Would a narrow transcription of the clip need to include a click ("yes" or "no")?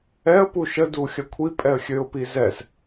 no